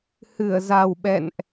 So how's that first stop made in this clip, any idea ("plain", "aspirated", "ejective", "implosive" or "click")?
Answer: implosive